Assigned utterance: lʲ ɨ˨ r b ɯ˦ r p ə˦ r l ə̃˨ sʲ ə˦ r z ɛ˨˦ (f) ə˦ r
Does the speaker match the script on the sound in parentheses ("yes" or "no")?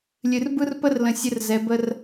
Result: no